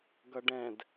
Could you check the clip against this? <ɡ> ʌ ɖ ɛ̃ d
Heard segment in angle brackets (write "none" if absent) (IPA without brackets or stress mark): ɡ